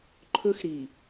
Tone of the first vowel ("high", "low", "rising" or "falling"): high